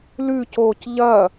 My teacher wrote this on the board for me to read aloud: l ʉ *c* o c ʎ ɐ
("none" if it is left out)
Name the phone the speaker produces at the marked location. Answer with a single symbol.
c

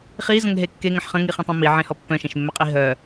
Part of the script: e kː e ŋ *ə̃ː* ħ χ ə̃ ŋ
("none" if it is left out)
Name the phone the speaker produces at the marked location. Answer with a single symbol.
ə̃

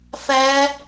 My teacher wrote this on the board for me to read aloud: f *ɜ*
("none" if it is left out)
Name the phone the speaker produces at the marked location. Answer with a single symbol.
æ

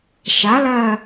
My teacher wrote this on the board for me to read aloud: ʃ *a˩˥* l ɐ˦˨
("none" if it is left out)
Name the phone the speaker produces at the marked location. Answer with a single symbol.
a˩˥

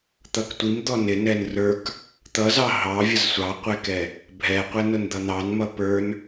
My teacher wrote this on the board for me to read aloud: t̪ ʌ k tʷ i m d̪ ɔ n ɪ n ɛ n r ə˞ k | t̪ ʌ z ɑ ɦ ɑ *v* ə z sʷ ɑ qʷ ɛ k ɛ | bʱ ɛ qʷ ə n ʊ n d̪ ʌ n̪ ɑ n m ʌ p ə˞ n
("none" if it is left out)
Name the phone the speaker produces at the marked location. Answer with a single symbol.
vʲ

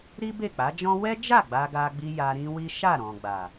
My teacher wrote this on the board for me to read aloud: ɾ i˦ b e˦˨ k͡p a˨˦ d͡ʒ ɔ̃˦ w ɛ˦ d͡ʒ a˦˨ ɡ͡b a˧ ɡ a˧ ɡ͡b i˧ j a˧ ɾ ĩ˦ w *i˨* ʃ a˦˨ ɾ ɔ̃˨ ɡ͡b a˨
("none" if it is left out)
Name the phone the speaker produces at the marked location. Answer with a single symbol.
i˦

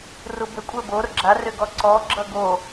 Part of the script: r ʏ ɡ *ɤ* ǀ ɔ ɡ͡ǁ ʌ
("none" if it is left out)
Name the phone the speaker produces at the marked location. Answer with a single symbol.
ɔ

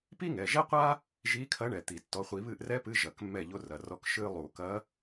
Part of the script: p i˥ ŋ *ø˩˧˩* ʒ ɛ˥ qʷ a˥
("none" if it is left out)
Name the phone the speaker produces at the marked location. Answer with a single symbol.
ɛ˩˧˩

